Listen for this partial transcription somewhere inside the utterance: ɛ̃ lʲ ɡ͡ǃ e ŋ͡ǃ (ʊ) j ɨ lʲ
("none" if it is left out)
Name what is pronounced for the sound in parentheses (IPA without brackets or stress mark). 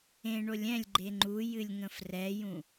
u